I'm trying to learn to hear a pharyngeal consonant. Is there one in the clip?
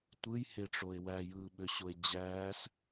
no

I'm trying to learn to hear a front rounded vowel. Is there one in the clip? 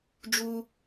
no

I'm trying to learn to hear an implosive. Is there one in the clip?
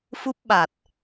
yes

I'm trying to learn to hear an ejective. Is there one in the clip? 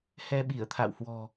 no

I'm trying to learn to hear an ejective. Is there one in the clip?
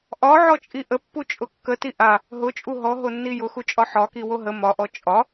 yes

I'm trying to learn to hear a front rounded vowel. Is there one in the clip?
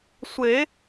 no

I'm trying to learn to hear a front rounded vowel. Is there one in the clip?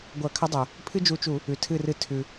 no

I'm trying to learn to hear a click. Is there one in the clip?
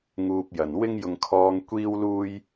no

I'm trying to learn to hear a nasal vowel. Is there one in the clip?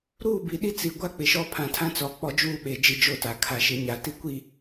yes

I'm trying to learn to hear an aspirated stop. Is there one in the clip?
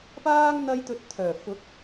yes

